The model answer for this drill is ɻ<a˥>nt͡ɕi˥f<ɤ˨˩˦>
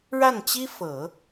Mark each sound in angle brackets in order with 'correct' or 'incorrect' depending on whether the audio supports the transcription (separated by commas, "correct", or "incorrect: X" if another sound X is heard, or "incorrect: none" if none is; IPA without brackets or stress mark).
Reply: incorrect: a˥˩, correct